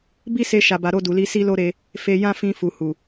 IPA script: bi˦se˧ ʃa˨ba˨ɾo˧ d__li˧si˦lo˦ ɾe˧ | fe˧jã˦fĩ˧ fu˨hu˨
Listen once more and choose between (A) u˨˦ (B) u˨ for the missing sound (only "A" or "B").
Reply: B